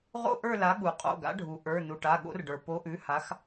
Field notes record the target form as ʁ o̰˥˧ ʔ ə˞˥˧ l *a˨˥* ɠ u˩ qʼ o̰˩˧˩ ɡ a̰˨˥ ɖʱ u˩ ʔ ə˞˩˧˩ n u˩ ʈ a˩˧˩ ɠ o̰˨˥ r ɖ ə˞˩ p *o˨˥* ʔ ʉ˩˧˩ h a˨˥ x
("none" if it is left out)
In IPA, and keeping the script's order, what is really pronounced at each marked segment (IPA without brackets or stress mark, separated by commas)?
a˨˥, o˨˥